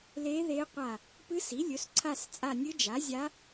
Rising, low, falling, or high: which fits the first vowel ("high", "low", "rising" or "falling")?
rising